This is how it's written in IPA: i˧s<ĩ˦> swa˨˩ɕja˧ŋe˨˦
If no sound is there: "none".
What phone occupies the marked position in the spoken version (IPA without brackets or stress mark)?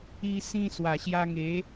ĩ˧